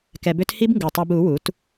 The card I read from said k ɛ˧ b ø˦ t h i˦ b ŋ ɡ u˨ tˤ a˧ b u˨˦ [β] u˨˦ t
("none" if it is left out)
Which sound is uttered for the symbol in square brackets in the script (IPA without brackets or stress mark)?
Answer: w